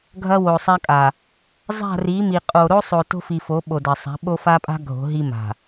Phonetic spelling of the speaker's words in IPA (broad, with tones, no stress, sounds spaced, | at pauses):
ɡʱ ɐ˦ w o˨ sˤ a˦ kʼ a˨ | zˤ a̤˦˨ r i˨˦ m i˨ qʼ o˨ ɾ o˦ sˤ o˨ t o̤˦ f i˨ f o˨˦ ɓ o˨ d ɐ˨ sˤ a̤˨˦ ɓ o˦ f a˦ pʼ a̤˦ ɡʱ o̤˨˦ ɦ i˦ m a̤˨